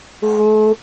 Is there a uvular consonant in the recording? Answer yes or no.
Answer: no